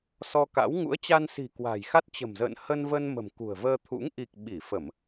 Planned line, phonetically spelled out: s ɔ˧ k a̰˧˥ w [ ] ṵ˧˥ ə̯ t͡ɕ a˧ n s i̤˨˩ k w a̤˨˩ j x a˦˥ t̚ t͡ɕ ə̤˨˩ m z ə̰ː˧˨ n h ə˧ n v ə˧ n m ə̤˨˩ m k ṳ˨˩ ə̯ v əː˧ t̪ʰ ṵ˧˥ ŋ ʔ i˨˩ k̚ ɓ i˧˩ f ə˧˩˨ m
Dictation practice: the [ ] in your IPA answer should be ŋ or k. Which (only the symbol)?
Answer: ŋ